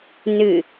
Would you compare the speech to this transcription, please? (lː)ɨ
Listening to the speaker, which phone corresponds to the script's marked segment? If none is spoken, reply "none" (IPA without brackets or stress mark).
n